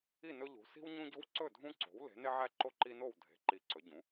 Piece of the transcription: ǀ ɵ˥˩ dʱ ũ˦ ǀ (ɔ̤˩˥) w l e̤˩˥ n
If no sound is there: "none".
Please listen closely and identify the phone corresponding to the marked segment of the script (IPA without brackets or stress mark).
o̤˩˥